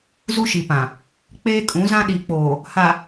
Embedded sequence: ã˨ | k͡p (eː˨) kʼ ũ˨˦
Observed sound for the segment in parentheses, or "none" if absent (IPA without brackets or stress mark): eː˦